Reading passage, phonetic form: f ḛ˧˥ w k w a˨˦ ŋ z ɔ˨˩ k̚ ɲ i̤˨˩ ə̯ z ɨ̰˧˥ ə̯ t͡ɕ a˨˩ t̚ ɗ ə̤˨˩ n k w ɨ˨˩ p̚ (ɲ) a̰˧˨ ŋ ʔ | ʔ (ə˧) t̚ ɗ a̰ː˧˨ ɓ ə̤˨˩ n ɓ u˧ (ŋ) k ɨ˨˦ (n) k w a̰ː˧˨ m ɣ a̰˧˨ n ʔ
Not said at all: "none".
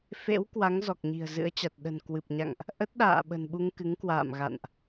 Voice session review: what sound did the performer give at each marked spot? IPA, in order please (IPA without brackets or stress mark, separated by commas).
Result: ɲ, ə˦˥, ŋ, ŋ